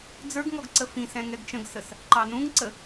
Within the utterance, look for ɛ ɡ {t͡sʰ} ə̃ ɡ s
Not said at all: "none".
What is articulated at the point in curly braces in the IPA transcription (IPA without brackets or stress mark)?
t͡ʃ